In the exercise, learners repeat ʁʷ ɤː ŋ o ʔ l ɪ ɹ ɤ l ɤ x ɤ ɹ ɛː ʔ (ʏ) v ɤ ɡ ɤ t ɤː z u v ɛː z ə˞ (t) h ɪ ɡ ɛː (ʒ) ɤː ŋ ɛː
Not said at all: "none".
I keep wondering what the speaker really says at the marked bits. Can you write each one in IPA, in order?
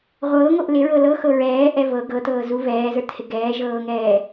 ɛ, t, ʒ

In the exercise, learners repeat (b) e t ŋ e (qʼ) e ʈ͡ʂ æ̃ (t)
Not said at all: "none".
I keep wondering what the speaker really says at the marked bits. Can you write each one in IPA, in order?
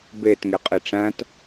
b, qʼ, t

